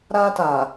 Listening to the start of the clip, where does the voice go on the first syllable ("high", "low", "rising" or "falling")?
high